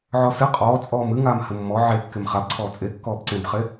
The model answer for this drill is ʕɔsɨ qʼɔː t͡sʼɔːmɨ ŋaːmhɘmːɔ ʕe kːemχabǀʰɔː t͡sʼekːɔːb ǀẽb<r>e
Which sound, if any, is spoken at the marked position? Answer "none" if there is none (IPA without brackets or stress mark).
χ